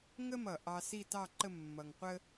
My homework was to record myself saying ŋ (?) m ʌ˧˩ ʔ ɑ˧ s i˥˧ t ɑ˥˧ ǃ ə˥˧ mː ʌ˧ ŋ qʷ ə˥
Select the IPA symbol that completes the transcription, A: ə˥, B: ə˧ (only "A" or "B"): A